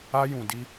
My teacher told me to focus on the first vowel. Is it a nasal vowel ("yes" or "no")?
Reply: no